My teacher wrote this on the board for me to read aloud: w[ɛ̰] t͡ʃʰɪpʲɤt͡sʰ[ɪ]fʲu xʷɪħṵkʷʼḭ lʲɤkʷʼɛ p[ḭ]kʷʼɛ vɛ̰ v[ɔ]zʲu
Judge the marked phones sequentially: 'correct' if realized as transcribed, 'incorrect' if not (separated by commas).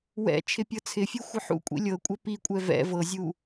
correct, correct, incorrect, incorrect